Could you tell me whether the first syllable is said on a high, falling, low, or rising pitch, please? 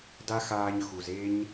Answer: high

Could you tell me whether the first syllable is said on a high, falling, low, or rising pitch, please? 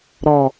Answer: low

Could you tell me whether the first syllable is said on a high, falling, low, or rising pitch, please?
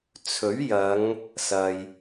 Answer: rising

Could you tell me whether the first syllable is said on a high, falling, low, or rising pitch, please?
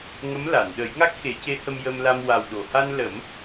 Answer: rising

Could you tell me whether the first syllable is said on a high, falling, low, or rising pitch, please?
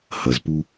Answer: low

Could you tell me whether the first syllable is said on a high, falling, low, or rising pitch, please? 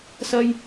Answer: high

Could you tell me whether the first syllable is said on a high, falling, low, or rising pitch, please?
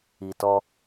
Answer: low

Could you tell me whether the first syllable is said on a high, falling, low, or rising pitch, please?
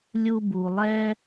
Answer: high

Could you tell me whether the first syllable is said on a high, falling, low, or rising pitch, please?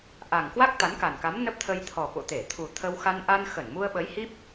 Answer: low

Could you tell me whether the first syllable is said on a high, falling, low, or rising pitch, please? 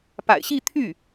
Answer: low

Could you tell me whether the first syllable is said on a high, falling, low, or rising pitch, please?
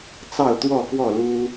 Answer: falling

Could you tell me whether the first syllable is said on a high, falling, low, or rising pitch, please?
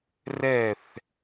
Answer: falling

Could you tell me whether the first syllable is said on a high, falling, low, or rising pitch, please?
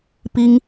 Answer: high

